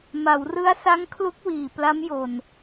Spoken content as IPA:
m a˩˦ w r ɯ˦˥ a̯ s a˦˥ ŋ kʰ l u˦˥ k̚ w iː˨˩ p l a˦˥ m j o˧ n

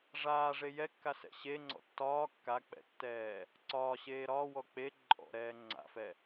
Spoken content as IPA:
ʐ aː ʐ e j ɛ kː a s ɛ̰ ɕ e ŋ͡ǀ ɔ̰ tː ɒː kː a k͡p ɛ̰ tː ɛː | ǀ ɒː ɕ eː ɾ ɒː w ɔ k͡p e ǃʼ ɔ̰ ɾ ɛː ŋ͡ǀ a̰ f ɛ

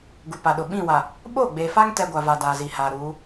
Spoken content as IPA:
ɡ u˨ p a˨ ɗ ʊ˨ ɓ ĩ˦˨ w a˨ | ɓ o˦˨ ɡ͡b e˨ f a˦ ŋ t ɛ˦ ɡʷ a˨ v a˨ d aː˨ z i˨ h aː˨ ɾ uː˨˦

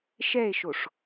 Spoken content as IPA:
ʃ ɛ e̯ ʃ o ʂ

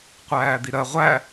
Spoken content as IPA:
qʷ æː d̪ i ɾ ɜ ʁʷ æ

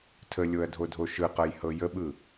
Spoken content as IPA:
tʰ ə lʲ o ɐ̯ dʱ o dʱ o ʃ ɯ q ɤ j h ɤ j ə ɓ ɯ

